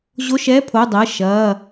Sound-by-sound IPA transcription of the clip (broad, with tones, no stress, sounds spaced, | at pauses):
ʑ o˧˥˧ ʃ ɛ˧˥˧ pʰ o˩˧˩ dˤ ɜ˩˧˩ ʃ ɐː˩˧˩